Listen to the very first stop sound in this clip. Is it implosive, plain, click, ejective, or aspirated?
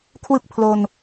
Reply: aspirated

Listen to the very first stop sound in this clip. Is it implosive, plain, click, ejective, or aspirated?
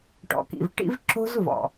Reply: plain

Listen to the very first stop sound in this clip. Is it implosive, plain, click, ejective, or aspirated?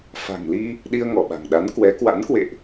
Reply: implosive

